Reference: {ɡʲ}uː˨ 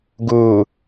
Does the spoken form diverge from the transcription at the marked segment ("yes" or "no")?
yes